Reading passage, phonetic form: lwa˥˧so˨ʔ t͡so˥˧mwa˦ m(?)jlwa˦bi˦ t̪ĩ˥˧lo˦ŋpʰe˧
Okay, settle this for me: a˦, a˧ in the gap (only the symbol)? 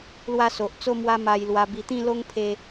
a˦